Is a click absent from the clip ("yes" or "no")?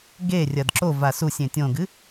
no